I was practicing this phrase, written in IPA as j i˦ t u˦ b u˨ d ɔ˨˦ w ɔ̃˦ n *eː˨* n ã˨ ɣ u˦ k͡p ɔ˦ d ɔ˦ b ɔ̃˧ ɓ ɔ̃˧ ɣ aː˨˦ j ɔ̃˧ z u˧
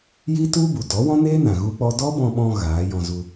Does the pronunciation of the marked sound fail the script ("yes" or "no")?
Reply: yes